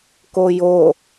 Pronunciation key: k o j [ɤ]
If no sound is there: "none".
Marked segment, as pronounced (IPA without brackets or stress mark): o